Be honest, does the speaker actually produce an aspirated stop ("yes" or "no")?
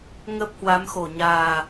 no